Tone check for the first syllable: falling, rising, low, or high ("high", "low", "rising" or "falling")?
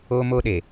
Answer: high